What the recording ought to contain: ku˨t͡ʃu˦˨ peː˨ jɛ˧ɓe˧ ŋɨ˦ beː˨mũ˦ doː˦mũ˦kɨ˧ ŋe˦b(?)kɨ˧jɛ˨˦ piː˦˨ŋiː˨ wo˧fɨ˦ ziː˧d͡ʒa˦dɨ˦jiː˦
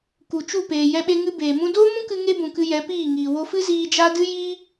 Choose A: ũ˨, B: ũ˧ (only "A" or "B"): A